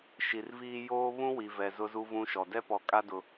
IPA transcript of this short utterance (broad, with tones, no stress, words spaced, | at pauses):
ʃi˨rviː˦ joː˦ βũ˦ wi˨vɛ˨ zʊ˦zu˦vũ˦ʃɔ˨ dɛ˦pɔ˨kʼa˦ dʊ˦